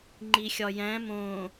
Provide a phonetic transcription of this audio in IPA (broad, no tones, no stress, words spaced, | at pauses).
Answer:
ŋ͡ǃixʲɒjæ̃ mõ